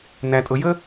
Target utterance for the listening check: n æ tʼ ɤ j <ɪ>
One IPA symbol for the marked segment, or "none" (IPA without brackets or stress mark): ə